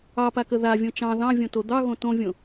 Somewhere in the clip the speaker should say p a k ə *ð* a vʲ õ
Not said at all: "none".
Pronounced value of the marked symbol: ð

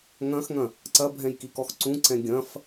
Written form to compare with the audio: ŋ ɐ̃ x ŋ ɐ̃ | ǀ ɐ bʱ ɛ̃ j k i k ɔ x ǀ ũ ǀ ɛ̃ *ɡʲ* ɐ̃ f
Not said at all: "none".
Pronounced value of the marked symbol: ɡʲ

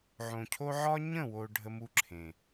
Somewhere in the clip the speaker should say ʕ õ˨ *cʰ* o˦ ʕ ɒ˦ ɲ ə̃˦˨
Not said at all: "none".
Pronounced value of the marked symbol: cʰ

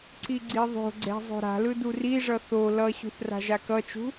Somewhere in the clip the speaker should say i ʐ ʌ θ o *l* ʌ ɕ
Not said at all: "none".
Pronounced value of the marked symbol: l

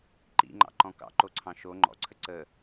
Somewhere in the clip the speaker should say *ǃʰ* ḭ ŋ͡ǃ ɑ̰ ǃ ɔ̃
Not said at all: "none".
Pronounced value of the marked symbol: ǃ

